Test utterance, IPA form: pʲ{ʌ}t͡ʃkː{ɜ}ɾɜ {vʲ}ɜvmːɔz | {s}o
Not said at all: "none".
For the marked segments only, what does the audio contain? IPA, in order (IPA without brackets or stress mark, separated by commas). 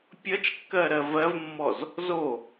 ʌ, ɜ, v, z